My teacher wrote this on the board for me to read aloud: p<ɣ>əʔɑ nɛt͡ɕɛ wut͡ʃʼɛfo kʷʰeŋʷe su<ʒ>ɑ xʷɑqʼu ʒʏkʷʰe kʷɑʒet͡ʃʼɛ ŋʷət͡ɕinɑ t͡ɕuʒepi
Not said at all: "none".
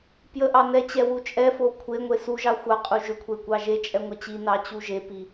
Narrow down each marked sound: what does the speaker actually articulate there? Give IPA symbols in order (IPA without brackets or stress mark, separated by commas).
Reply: j, ʒ